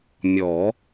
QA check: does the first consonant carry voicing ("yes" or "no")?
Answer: yes